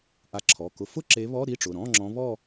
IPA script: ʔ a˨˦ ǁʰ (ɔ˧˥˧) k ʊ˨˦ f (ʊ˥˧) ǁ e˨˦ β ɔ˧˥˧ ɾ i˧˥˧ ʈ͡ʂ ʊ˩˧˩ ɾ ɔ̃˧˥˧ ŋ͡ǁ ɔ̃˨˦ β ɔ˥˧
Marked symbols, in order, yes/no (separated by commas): no, yes